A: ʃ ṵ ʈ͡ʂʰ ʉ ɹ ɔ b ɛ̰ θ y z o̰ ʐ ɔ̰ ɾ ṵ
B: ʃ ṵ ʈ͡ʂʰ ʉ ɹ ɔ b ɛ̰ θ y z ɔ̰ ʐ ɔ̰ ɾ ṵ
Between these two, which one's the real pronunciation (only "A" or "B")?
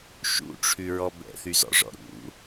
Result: B